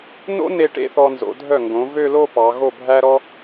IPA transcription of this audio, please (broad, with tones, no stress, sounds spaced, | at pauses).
n o̰˥ n e˧ ʈ ḛ˥˧ θ ɔ˧ n z o̰˩˧ dʱ œ˧˩ ŋ ɡ õ˩˧ v ø˥˧ l o˥˧ p ɑ˩˧ ɣ o˧˩ bʱ æ˧ ɾ ɔ˧